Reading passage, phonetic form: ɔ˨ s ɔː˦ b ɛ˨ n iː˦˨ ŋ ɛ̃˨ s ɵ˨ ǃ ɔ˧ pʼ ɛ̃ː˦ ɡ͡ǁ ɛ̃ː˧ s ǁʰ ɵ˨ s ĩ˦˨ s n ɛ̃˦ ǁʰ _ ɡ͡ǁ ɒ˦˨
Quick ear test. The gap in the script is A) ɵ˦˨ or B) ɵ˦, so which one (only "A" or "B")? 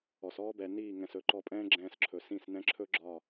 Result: B